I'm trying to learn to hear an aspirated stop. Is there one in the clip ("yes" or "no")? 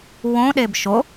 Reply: no